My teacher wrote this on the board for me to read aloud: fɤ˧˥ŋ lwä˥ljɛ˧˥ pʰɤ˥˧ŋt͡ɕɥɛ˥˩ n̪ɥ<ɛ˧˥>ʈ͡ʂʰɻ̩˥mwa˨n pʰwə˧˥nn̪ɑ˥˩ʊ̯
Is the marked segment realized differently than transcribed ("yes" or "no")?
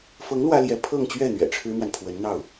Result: yes